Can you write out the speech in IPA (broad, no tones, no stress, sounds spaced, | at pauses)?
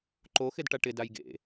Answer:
ǃ o x ɪ d ʈ a ʈ ɪ d a j ɡ ḛ